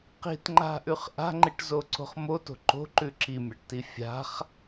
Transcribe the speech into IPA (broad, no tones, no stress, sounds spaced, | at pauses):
q i̤ t ŋ͡ǃ a̤ ʔ ʉ χ ʔ a̤ ŋ͡ǃ i ʈ z o ǀ o̤ χ m o t o̤ ǃ o̤ ǃ ʉ ǁ i mʲ a ʈ t i fʲ a̤ χ